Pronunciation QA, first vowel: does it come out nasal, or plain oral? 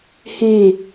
nasal